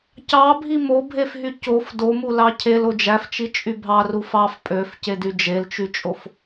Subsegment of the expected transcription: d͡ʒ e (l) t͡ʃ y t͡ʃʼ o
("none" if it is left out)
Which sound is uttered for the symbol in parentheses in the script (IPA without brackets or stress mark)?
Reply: l